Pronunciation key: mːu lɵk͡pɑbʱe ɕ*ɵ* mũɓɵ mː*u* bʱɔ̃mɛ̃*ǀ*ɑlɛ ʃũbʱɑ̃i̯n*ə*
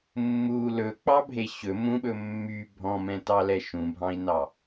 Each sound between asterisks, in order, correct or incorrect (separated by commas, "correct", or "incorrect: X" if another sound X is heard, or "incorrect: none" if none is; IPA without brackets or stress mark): correct, incorrect: y, incorrect: t, incorrect: ɑ